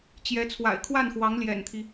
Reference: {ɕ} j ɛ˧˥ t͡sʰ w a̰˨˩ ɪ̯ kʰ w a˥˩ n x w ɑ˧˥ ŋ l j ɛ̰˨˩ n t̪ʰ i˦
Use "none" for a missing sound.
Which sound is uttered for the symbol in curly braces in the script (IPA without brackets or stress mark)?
t͡ɕ